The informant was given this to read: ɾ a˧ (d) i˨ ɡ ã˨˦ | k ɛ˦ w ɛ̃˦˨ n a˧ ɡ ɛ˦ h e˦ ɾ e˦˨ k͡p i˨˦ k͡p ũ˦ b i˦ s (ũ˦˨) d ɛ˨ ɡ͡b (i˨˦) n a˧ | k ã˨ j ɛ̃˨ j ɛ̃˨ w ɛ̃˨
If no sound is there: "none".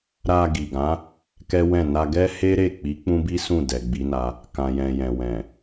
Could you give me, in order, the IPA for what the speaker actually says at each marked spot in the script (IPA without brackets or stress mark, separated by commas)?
ɡ, ũ˦˨, i˨˦